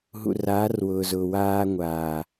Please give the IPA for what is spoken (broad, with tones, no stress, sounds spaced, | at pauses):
ɦ ṵ˨ r aː˨˦ r w ʊː˨ z ʊː˨ w aː˦ ŋʷ aː˨